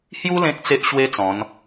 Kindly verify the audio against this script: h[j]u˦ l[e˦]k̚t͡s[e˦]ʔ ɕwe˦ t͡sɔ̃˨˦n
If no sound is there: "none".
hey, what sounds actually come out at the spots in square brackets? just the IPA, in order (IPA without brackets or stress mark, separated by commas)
j, ẽ˦, e˦